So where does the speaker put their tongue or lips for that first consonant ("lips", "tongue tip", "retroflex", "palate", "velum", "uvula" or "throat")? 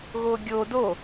velum